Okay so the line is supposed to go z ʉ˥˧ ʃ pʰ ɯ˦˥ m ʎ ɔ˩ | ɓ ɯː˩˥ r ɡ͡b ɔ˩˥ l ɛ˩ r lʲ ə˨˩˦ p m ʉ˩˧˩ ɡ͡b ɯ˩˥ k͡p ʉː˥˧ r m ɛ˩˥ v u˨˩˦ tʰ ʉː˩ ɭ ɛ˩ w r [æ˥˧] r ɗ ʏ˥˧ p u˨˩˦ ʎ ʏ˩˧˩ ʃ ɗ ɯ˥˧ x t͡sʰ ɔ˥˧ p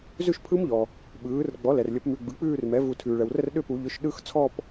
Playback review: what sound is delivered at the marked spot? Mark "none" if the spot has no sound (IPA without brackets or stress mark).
ə˥˧